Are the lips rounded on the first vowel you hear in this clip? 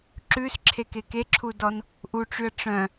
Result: yes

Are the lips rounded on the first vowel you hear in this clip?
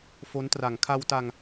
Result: yes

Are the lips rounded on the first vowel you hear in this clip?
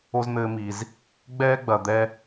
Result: yes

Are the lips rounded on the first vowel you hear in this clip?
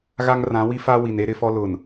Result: no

